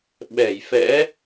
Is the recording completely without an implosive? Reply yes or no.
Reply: no